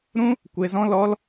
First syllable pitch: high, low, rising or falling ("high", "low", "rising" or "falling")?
high